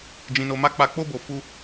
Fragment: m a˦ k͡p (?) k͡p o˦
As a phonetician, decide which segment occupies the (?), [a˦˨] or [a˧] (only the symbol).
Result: a˧